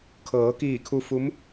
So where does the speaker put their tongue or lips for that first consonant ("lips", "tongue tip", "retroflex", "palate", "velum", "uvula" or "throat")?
velum